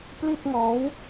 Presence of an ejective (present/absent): absent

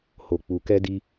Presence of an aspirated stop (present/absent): absent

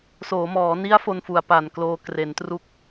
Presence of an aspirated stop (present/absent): absent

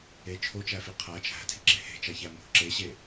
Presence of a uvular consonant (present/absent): present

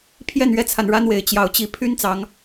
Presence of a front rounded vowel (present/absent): present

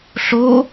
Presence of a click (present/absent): absent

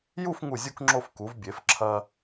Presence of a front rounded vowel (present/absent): absent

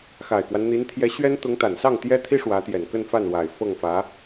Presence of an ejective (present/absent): absent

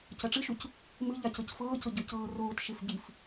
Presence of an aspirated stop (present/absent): absent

